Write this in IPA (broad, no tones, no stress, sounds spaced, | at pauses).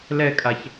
l ɛ kʼ a ç